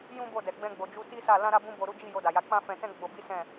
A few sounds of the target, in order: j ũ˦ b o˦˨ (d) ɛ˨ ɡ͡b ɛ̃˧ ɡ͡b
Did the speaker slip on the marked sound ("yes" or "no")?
no